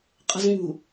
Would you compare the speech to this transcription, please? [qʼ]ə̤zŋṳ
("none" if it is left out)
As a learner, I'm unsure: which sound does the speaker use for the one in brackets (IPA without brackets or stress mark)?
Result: qʼ